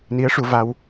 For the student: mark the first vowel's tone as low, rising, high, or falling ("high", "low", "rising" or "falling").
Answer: rising